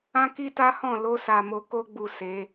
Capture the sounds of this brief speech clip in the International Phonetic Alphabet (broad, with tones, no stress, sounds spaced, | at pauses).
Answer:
ã˦ k i˦ t a˦ h ɔ̃˦˨ l o˧ s a˨ m o˧ k o˦ ɡ͡b u˦˨ s e˨˦